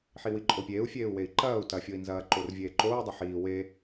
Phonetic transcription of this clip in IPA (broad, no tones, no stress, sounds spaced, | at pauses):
ħ i w i ǃʼ o pʲ eː u̯ fʲ eː u̯ w e i̯ ǃ ɐː u̯ t ɐ fʲ o i̯ n z ɐː ǃ o r vʲ eː ǃ oː u̯ dˤ ɐ ħ iː w e